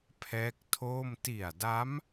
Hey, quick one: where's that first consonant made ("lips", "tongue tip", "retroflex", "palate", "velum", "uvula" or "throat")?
lips